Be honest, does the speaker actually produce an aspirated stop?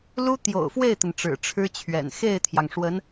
yes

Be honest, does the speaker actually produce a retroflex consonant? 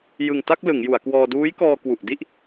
no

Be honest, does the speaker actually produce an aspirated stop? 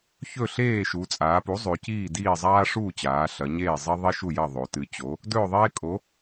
no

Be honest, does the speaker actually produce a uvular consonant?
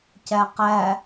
yes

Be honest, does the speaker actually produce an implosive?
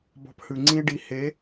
no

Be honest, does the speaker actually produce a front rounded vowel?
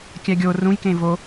no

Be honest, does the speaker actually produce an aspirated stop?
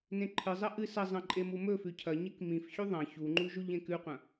yes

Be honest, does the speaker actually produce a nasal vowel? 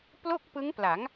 no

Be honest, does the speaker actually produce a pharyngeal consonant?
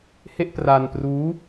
no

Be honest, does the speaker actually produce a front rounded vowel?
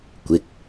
no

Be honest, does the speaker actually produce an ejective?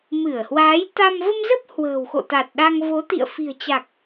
no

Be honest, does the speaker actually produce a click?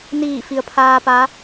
no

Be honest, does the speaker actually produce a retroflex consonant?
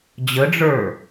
yes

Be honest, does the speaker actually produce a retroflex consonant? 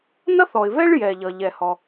yes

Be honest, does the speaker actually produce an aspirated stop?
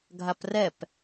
no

